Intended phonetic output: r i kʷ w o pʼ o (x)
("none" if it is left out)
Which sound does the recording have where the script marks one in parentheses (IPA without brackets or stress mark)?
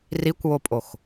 x